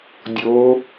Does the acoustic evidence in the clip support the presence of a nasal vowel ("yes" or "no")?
no